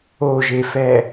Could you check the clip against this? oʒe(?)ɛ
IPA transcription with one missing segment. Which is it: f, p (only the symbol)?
f